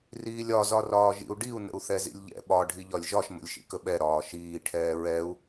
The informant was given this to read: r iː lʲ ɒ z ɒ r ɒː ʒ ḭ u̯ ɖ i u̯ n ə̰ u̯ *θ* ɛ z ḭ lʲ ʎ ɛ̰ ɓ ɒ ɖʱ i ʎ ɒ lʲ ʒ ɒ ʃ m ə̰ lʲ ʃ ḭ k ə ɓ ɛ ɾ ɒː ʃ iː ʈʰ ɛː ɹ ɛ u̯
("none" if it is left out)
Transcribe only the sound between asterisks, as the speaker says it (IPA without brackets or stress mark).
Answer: θ